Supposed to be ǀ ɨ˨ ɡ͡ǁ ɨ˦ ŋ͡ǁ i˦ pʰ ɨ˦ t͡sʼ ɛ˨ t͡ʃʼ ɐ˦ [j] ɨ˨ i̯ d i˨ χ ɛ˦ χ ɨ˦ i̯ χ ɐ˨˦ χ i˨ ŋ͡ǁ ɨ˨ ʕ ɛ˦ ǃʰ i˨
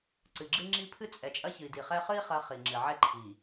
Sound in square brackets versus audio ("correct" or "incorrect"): incorrect